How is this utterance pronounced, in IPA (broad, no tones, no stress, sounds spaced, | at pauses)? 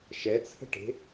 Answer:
ʃ ɛ t͡sʰ ə̤ ʈ e̤